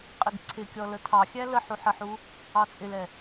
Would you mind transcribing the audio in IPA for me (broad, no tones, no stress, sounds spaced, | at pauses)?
qʼ ɪ ɡ ǀʰ ɪ kʲ ɔ l ə tʰ ɑ xʲ æ l ə ħ u ħ ə ħ u | ɑ t͡sʼ ɪ l ɛ